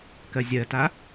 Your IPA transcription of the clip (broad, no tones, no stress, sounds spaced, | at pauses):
k ɜ zʲ ɜ t a